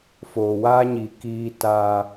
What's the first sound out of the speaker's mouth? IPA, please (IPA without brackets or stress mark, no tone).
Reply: f